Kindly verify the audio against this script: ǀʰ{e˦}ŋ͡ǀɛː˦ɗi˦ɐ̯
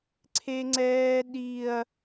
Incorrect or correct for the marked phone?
correct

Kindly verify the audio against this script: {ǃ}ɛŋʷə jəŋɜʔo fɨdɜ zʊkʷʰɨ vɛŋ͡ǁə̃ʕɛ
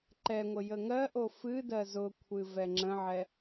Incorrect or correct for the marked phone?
correct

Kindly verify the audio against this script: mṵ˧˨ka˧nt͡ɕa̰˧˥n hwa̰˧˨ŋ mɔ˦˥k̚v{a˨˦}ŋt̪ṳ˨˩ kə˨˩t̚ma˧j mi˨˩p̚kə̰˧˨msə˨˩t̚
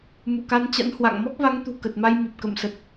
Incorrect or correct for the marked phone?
correct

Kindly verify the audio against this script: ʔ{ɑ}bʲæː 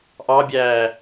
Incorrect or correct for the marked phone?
correct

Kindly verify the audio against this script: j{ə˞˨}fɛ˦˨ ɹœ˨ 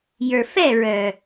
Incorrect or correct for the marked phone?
correct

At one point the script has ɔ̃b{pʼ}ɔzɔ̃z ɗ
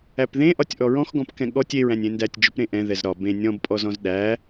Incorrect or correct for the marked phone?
correct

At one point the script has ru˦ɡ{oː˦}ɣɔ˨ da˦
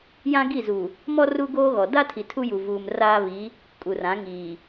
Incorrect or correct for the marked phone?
correct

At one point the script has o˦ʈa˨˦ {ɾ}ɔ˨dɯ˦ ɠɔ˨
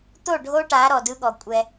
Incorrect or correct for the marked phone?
correct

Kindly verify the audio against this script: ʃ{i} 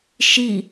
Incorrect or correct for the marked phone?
correct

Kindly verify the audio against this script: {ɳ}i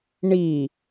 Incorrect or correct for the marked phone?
correct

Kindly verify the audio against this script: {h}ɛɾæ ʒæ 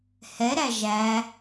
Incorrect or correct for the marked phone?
correct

